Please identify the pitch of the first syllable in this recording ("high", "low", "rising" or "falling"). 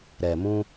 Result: low